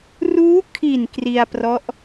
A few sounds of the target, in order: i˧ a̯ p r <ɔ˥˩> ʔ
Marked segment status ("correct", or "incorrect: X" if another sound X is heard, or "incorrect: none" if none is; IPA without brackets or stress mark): incorrect: ɔ˦˥